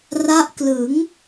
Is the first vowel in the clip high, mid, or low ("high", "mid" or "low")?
low